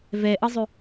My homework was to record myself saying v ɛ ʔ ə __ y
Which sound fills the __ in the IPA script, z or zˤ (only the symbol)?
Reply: zˤ